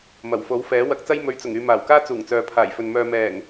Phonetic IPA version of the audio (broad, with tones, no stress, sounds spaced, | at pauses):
m ɐ˨˩ w f o˨˥ w f ɛː˨˥ w ɐ˧ k̚ t͡s ɐ˥ j m ɵ˨˧ ɥ t͡s ʊ˨˩ ŋ yː˨ m aː˨˩ w k aː˥ t͡s uː˨˩ ŋ t͡s œː˨ pʰ aː˨˩ j f ɵ˨ n m œː˨ m ɛː˨˩ ŋ